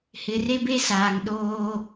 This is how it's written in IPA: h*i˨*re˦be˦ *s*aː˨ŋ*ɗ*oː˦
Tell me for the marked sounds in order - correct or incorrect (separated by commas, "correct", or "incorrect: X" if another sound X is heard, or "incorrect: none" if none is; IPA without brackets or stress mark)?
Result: incorrect: ɪ˨, correct, correct